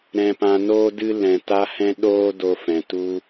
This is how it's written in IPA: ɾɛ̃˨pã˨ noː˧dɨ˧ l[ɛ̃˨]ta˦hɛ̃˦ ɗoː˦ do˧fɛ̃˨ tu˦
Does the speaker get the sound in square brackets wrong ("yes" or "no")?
no